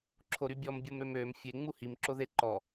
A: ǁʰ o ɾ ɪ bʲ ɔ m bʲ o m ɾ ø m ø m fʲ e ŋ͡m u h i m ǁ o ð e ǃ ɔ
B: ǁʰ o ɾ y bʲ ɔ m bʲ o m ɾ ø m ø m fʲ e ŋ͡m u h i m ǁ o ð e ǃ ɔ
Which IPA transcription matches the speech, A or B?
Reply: B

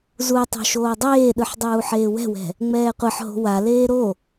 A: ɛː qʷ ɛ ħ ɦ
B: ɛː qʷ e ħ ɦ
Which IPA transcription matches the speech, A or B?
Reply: B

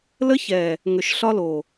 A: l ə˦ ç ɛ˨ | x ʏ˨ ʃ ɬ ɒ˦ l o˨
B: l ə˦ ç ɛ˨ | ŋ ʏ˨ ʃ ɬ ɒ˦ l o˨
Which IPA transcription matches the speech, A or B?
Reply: B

